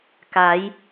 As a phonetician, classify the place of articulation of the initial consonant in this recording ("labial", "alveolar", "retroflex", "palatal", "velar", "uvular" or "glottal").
velar